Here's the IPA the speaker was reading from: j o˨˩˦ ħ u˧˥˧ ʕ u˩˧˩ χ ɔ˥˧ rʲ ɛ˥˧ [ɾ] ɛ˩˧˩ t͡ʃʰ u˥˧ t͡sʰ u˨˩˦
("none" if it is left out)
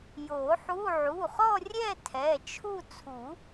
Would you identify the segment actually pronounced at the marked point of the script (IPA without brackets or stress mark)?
tʰ